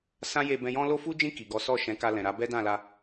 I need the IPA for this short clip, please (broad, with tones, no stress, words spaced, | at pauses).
sã˦je˧bɛ̃˧jɔ̃˦ lo˦fu˦d͡ʒĩ˦˨ ki˨ɡɔ˨˦ sɔ˦˨ʃɛ̃˨˦ ka˧lɛ̃˨ɾa˨˦ bɛ˦dã˦˨la˧